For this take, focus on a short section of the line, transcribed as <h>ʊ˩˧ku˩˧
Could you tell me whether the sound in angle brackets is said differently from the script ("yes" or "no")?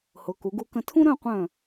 no